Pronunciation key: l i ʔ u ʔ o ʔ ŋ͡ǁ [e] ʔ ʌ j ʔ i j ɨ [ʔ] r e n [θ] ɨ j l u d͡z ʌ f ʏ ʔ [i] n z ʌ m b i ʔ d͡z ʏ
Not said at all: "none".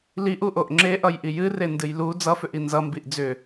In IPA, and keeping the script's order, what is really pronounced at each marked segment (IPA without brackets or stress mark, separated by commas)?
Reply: e, none, d, i